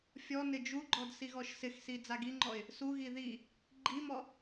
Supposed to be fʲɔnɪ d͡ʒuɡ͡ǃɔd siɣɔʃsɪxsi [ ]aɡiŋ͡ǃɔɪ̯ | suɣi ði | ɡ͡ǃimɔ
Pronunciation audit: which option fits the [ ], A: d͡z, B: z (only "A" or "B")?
A